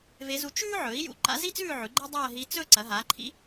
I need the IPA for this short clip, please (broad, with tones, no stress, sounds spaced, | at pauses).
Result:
v e˧˥ z u˧˥ t͡ʃ ʉː˥ ʕ ɵ˩˥ i̯ j ṵ˥˧ ǃ a̰˧˥ z i˥ t͡s ʉː˥˧ ʕ ʉ˩˥ ɡ͡ǃ e˥ dˤ ɐː˥˧ ɦ i˧˥ t͡s ɵ˥˧ ǀ ɐ˩˥ ɦ a˩˥ ǃʰ ḭ˧˥